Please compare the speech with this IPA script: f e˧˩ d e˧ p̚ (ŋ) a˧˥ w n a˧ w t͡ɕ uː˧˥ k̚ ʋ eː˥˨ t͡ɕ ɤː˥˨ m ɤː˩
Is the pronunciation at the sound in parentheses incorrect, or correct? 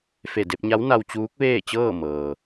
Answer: incorrect